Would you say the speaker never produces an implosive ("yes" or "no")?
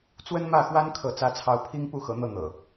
yes